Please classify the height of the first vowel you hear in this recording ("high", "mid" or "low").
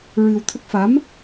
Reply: high